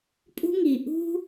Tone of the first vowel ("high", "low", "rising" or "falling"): high